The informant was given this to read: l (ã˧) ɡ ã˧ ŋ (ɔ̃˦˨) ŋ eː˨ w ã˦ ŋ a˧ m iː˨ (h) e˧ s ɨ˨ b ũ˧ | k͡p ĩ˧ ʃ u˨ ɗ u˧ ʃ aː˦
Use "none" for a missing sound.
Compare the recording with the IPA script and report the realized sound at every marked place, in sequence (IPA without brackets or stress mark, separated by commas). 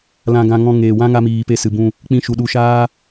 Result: ã˧, ɔ̃˧, p